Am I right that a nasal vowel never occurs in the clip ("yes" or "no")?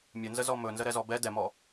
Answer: yes